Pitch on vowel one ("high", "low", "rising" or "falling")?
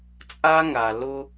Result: high